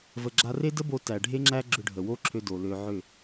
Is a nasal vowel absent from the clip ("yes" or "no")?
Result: yes